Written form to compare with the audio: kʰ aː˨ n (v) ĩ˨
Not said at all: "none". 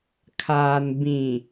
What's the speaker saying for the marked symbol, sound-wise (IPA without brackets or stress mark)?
b